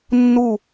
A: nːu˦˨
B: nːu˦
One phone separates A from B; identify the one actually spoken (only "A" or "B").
A